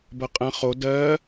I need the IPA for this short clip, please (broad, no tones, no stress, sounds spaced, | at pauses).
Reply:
b ɐ qʼ ɐ̃ χ o d ɜ